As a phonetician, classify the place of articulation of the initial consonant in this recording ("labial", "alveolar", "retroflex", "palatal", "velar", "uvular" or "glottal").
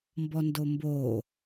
labial